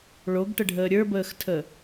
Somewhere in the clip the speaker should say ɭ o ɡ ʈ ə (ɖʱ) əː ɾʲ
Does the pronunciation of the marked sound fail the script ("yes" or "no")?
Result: no